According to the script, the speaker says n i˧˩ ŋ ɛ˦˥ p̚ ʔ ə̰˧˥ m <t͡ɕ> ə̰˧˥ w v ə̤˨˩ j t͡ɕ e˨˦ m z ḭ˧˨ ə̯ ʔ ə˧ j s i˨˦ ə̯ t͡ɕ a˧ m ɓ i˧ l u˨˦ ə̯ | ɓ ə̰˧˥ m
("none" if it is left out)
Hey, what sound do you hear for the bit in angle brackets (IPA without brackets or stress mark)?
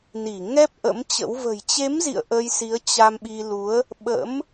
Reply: t͡ɕ